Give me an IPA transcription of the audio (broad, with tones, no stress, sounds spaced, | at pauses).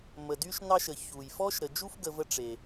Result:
m ə˩ d y˦ ʃ n ɑ˦ ʃ ə˩ ç u˩ j f ɔ˥ ʃ ɾ ə˨ d͡ʒ u˦ f ɡ ə˨ v ə˦ ʈ͡ʂ e˩